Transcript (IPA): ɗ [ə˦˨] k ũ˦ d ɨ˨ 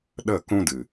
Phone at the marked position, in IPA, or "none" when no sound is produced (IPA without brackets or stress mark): ə˦˨